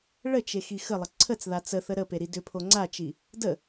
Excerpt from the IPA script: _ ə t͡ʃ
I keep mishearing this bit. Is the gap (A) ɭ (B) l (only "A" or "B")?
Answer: A